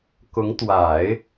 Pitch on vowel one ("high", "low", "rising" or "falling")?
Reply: rising